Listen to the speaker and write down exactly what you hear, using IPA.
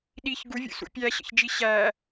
ɗ i ç ɡ u vʲ ṵ s ṵ pʲ æ ɕ ə̰ ç d͡ʒ i ɕ æ

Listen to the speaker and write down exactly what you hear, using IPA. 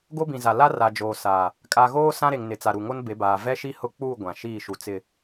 ɡ o˦ b ĩ˨ z a˨ l a˦ r a˨ d͡ʒ oː˨ s a˨ | kʼ a˨ ɣ oː˦ s ã˦ ɾ e˨ ŋ n ɪ˨ t͡s a˨ ɾ u˨ ŋ o˦ n b e˨˦ b aː˨ v ɛ˦ ʃ i˦ h ʊ˦ k͡p uː˦˨ ɡʷ ã˨ ʃ iː˦˨ ʃ u˨ t͡s ɪ˨

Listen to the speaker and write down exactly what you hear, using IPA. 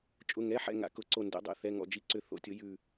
t͡ʃʼ ʊ˩˧˩ ŋ ɛ˩˧˩ ħ ɛ̰˧˩ ŋ a̰˨˩˦ k ʊ˩˧˩ ǀ o˧˩ n d ɛ̰˨˩˦ dˤ ɛ̰˩˧˩ θ ɛ˩˧˩ ŋ ɔ̰˧˩ d͡ʒ i˩˧˩ ǀ ʏ˨˩˦ θ o̰˧˩ tʲ ʊ˨˩˦ j ʉ˧˩

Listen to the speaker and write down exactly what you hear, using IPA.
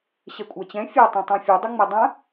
ɕ ɛ kʷʼ a t͡ɕ ɛ̃ fʲ a tˤ ẽ tˤ ã fʲ ɯ dˤ ʏ ŋ͡m e dˤ ã

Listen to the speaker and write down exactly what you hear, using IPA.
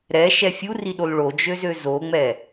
ɾ ɛ ʃ ɛ fʲ u r i ɗ o l ɭ o d͡ʒ ø z ø z o ŋ͡m ɛ

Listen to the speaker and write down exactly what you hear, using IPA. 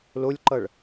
l o lʲ ǃ ʌ ɭ

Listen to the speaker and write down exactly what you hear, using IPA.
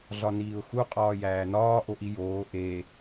ɮ ɒ n iː ʊ̯ x u qʼ ɒː j æː n ɒː ʔ o ʔ i j oː ʔ e

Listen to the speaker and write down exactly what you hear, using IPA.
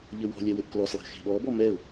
ʎ ɘ w ɔ̤ lʲ ɛ w ɘ ʔ k l ɔ s lˠ e̤ x e̤ ɓ ɔ b ɔ m ɛ ʊ̯

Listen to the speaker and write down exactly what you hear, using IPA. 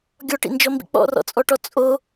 ɡʲ ɔ ʈ ḭ n d͡ʒ ɔ m b ḭ k͡p ɔ̰ r ɔ̰ t͡sʼ ɔ ʈ ɔ t͡sʼ o

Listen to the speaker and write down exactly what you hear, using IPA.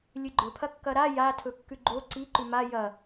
lʲ ɨ ɡ͡ǃ ɵ pʰ ɐ kː ɐ ɾ a j a tʰ ɵ kː ʉ ɡ͡ǃ o ǀ i ǃ ʉ m a j ɐ

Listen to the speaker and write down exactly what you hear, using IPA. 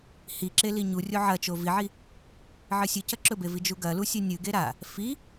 h i ǁ e l i ɲ u rʲ o ʕ ɐ t͡ʃ o v i ʕ i | ʕ ɨ sʲ ɨ c ɐ ǁ ɵ b e v i d͡ʒ u ɡ ɐ l u sʲ ɨ nʲ ɨ ɡ e ɾ a | f i

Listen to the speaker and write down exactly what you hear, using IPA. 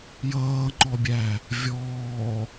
j ʌː ŋ͡ǃ ɔ bʲ æ | vʲ ɔː

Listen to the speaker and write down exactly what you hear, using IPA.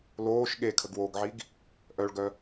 l oː ʃ ɠ e kʰ ə ɡ w oː ɡ ʕ i ɡ | ʔ œ ɭ ɡ œ

